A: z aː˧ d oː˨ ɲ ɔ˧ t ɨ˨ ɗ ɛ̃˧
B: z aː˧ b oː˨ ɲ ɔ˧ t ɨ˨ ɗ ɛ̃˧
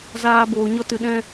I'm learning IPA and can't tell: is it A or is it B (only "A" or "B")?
B